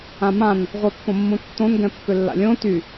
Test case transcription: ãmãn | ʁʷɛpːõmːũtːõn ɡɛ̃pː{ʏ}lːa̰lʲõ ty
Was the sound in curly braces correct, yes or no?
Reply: yes